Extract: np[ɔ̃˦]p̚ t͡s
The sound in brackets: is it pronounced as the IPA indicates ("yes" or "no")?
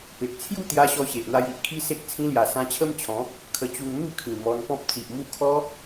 yes